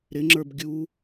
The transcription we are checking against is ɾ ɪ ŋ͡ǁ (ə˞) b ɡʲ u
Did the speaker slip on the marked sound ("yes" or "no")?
no